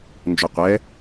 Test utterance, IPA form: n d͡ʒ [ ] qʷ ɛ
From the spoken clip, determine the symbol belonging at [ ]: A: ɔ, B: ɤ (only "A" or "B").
A